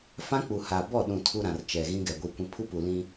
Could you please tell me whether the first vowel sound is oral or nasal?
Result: nasal